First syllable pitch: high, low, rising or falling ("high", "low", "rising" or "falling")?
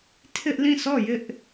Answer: high